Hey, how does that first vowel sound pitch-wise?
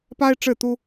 high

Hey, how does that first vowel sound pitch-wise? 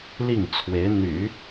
falling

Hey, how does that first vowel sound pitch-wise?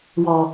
low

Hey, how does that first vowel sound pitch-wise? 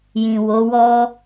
low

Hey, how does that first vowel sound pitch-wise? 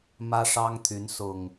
high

